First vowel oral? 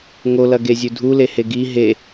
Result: yes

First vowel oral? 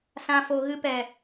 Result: no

